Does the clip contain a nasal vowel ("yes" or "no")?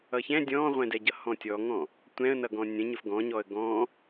yes